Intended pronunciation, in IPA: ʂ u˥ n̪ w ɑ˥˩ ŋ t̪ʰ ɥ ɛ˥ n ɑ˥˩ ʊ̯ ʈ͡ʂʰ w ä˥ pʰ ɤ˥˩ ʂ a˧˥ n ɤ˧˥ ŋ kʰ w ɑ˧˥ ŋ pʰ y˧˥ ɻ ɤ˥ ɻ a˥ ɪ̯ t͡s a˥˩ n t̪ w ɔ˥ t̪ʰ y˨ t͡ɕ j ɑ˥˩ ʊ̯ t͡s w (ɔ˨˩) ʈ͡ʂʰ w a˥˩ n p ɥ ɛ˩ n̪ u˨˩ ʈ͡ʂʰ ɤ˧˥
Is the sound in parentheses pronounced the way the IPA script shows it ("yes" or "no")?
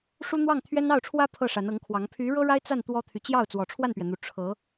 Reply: yes